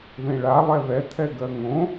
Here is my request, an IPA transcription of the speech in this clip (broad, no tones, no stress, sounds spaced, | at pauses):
ð ẽ ɭ a lˠ ɛ ð ɛ tʰ ɛ ɡ ɜ ŋ õ